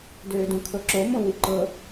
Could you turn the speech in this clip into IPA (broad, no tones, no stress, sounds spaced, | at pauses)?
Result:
d øː d ũ kʰ ɤ ǁ o m õ w i ǃ ɤ